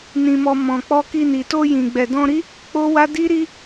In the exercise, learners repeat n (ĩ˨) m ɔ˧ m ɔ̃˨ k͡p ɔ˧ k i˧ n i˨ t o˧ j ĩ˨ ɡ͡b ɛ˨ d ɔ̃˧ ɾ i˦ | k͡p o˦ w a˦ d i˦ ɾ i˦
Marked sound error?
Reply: yes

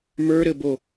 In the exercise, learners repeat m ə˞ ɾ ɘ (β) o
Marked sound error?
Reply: yes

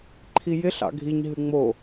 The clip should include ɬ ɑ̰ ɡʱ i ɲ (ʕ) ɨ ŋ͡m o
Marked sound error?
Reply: yes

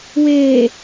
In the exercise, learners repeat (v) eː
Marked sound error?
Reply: yes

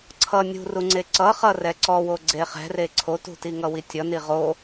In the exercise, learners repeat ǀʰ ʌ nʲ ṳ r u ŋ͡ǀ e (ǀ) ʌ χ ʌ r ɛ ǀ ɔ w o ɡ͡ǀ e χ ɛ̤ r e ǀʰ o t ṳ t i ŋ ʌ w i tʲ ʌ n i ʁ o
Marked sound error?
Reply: no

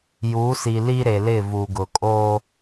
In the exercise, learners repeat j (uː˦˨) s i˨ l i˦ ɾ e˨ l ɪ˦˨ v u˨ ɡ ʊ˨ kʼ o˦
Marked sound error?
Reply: yes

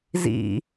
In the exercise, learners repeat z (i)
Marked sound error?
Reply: yes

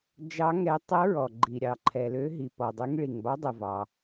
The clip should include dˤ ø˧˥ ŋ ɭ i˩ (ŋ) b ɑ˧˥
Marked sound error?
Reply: no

